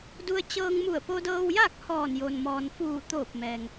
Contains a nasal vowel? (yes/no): no